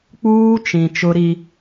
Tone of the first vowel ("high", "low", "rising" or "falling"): high